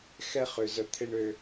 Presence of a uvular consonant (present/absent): present